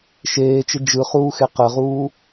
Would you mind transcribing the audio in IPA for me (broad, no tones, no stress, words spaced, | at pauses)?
ʃeːt͡ʃɪ d͡ʒɯχuːxe qəʁuː